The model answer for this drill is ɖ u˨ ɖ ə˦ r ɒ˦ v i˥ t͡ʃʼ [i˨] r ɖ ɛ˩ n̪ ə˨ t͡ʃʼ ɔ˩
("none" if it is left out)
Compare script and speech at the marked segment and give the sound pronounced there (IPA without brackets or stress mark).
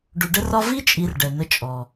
i˨